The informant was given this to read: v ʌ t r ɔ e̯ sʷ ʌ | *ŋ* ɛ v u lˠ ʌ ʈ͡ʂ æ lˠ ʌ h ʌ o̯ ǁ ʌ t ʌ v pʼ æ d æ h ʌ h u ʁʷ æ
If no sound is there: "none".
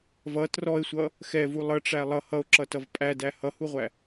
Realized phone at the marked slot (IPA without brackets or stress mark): x